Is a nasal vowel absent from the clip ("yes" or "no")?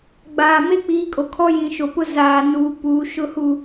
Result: no